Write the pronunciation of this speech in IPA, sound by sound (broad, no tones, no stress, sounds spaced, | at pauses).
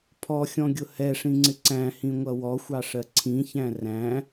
pʰ ɔ xʲ ɔ̃ ɡʲ ʊ h ɛ ʂ ĩ ŋ͡ǀ ɪ ǀ æ̃ h ĩ ŋʷ ʌ w ɔ xʷ ɑ ʂ ɜ ǀʰ ĩ ç æ̃ r æ̃